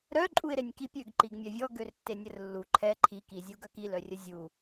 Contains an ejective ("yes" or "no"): yes